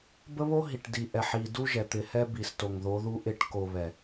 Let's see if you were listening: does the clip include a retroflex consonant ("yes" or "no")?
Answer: yes